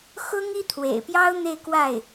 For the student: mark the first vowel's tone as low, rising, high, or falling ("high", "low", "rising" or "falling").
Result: high